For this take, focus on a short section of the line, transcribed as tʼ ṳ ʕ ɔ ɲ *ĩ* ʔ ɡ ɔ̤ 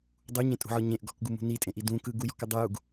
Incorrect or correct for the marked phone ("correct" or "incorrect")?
incorrect